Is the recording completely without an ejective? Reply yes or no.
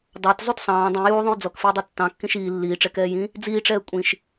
no